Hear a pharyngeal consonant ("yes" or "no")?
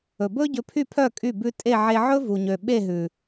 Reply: yes